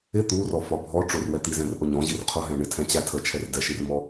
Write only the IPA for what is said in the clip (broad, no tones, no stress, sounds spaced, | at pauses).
ɪ t̪ u r ɔ f ɒ bʱ ɔ ʈ͡ʂ ʊ r w ɛ t̪ i z ɛ̃ r ʔ ʊ ɲ ɔ̃ ʑ i r qʰ ʊ ɦ ɛ̃ ɳ ɪ tʰ ɛ̃ t͡ɕ æ tʰ ə t͡ʃʰ ɛ r d ɛ ʃ i r m ɔ